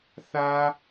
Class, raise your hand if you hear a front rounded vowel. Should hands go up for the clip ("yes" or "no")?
no